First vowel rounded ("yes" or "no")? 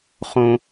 yes